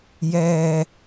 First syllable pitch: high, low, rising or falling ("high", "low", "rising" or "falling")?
low